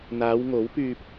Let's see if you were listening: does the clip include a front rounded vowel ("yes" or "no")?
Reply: yes